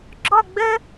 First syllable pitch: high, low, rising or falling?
falling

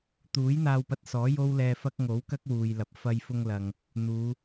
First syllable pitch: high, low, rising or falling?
rising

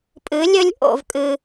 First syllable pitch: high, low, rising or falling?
rising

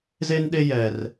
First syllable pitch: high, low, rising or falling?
high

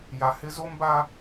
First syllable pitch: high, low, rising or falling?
low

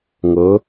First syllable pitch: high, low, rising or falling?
rising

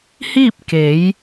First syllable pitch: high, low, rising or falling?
falling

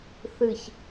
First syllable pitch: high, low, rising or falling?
low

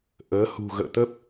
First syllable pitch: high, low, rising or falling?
rising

